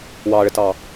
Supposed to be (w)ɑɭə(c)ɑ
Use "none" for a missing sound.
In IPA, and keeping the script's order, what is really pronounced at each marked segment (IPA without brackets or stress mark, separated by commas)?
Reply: w, t